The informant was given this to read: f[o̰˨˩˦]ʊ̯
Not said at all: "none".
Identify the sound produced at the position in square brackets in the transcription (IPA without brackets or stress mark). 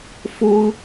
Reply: o˥